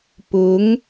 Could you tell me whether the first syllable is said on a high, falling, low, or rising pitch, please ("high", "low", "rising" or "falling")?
rising